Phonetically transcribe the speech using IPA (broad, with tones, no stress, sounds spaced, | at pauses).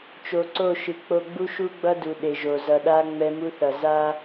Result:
t͡ʃ o˨ ǀ o˦˨ ʃ ɯ˨ k͡p o˨ ɡ͡b u˦ ʃ u˦ ɡ͡b ʌ˦ d u˨ ɗ e˨ ʒ o˨ z ʌ˨ ɗ a˦ ŋ͡m ɛ˦ m u˦ θ ʌ˨ z a˦